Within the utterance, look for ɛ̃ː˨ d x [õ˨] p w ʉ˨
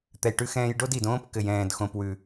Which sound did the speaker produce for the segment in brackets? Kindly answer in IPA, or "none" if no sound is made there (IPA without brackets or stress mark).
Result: õ˨